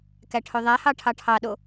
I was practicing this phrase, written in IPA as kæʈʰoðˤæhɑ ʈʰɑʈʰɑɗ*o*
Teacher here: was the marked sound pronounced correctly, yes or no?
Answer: yes